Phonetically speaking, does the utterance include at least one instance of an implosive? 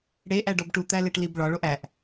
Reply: no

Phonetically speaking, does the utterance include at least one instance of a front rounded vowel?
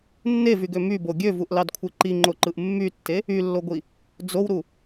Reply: yes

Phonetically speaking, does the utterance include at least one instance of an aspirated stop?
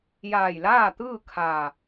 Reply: yes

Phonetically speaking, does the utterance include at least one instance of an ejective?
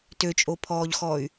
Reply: yes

